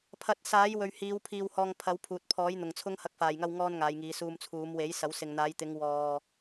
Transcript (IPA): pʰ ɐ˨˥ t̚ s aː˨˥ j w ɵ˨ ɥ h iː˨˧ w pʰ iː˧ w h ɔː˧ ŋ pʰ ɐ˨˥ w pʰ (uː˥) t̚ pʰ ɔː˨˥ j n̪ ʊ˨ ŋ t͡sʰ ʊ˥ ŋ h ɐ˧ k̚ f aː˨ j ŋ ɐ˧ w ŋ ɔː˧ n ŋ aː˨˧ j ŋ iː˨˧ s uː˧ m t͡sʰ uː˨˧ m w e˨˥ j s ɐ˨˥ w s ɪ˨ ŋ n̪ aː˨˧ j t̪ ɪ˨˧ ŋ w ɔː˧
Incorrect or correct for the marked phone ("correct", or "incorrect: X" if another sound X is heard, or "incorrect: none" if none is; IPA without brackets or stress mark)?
incorrect: uː˨